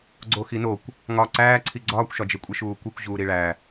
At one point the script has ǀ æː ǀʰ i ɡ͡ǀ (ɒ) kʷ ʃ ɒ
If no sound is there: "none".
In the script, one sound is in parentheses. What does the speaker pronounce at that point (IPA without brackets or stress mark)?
ɒː